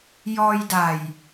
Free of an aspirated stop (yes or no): yes